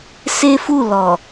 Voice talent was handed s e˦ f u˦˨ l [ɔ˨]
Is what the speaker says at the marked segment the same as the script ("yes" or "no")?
yes